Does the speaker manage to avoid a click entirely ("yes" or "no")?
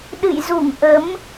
yes